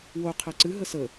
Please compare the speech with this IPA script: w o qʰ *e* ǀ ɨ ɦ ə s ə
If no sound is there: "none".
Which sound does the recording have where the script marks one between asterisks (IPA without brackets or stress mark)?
ɛ